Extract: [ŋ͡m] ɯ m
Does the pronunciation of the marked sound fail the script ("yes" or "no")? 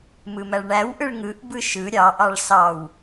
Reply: yes